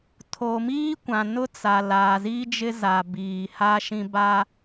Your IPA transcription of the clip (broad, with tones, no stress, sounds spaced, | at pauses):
tʰ o˨ m iː˦ kʷ ã˨ n ʊ˦ t͡s a˨ l aː˨ z iː˦ d͡ʒ ɪ˦ z a˨ b iː˨ h a˦ ʃ ĩ˦ b aː˦